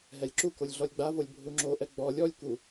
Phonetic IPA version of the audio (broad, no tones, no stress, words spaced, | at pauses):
ɦɛlʲǁukolʲ ɮɔlʲɡ͡bavolʲ bʱuŋ͡ǁoʔɛ ɡ͡bɔ lʲɔlʲku